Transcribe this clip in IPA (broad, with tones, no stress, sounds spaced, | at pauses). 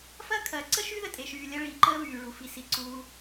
f ɐː˥ kʰ ɐː˨ ǀ ə˥ ʃ y˥ ð ə˦ tʼ e˨ ʃ yː˨ lʲ ɐ˦ ɭ iː˨ ǃ əː˦ β yː˩ ɭ u˩ f i˨ s i˨ ǀ uː˨